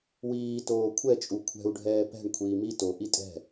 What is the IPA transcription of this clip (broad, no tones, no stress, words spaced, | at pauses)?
wiː toːkʷʰɛ t͡ʃʼukʷʰɛ̤u̯ ɖʱɛːpɛ̤ɳ kʷʰiːmi to ʔitʼɛ̤